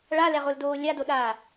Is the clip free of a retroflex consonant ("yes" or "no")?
no